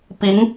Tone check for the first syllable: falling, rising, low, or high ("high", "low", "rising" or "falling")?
rising